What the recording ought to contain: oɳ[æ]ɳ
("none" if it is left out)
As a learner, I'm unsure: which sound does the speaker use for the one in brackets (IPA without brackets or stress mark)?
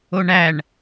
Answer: æ